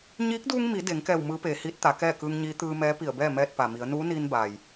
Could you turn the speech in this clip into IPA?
ɲiː˧˥k̚duː˧ŋ mi˩˧ de˩˧ŋkɛː˧˩w mɯː˧˥peː˩˧hiː˧˥t̚t̪a˩˧ kɛː˥˨kɯː˧ŋɲiː˧˥ t̪ɯː˧mɛː˧˥ pi˧˩ə̯bɛː˥˨ mɛː˧t̚pa˩mi˩˧ə̯ nuː˧˥niː˧n baː˩j

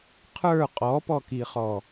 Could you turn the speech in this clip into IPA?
qʰə˞ qʼɔpɔkiχɔ

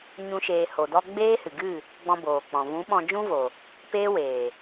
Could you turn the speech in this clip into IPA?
ɲũ˦ʃeː˧ ho˨dɔ˧ ɡ͡beː˦hɨ˨ɡɨ˦˨ | ɡ͡bɔ̃˧boː˨k͡pɔ̃˨ vũ˨˦ ɓɔ̃˧d͡ʒũ˦vo˨ | peː˦weː˨

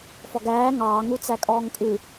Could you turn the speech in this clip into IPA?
fɔɡæː ŋɑːŋut͡sækʼɔːŋ kʼʉ

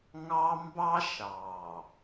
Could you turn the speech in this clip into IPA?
ŋɑ˦ mbɑ˦ʃɑ˨

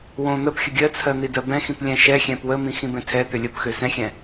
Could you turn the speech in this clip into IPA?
wõ n̪əpxʲə ɡʲɜt͡sʰɜ n̪idɜbɛ̃xĩp lʲɛ̃ʃɛxʲɛ̃p wəmĩ xĩbɛ̃tʰɛt̪ʏ lʲəpxʏ sɛ̃xʲɛ̃

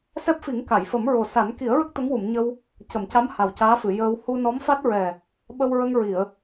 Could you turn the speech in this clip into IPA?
sɛ˦˥p̚fi˨˩˦ŋ ka˨˩˨jfə˨˩˦m ɹo˨˩sa˨˩˦n ki˨˩˦ə̯ɹə˦˥k̚ t̪ə˧˥ŋwu˨˩˨mɲə˧w | cə˨˩˨mca˧˥m ha˨˩wcaː˧˥fɨ˨˩˨ jəː˧w hu˧nɔ˧˥mfa˦˥t̚ɹɛ˨˩ | ɓə˧wɹə˧ŋ ɹi˨˩˨ə̯

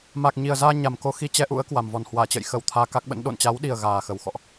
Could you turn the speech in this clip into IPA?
maː˨˩k̚ɲi˨˩ə̯zaː˧ ɲa˨˩mko˧xi˧ t͡ɕɛ˧ʔṵ˧˥ə̯ kwa˨˩mvɔ˨˩n hwaː˧˩t͡ɕə̰˧˨jxə˧˩w t̪ʰaː˧ka˦˥k̚ɓə̰˧˥n ɗo̰˧˨nt͡ɕa˨˦wɗi˨˩ə̯ ɣaː˨˩xə˨˩wxɔ̰˧˨ʔ

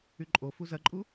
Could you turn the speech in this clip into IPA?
yǃʼofu zɐǃʼu

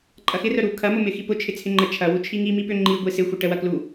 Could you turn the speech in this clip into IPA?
ǃʼɐxɪrœ ɾu kʰɐmʊ mɪxipʊ t͡ʃʰɪt͡sʰɪŋ͡ǃə t͡ʃʰɐwu t͡ʃʰiŋi mipʏ ŋ͡ǃi ɡʷisɪxʷə ʈə wɐklu

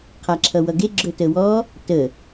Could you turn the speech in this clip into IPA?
qʰaǁʰʌwʌɡe ɡ͡ǁɵtəwɔ | tə

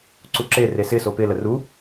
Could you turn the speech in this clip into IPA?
ǀuǁere sɪso pɪlə ru

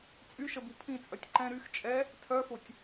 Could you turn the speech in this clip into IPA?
t͡sʼyʃəbu pʰĩt͡sʼœtʲ ǃɛ̃ ɾyx t͡ʃʼɛ | tʰœfotʲ

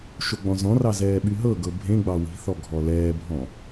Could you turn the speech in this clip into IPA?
ʃoɡ͡bɔ̃zɔ̃rɑ zɛːɓyɦɤɡɤ bʱẽɡ͡bɑ wi̤θɔ ɡʱɔlɛːbʱɔ̃

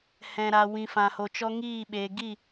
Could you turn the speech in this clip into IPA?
hɛ̃˨ɾa˨ wĩ˨fã˨ho˨t͡ʃɔ˧ ŋiː˦˨ ɓeː˨ɡi˦˨

